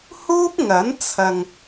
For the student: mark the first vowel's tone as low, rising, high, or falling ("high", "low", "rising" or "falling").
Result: high